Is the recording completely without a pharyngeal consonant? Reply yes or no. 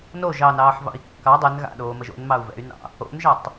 no